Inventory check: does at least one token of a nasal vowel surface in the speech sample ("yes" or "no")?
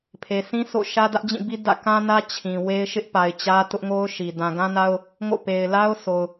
yes